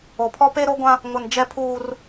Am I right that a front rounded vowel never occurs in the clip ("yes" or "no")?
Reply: yes